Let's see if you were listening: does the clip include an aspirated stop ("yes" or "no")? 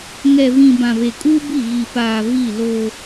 no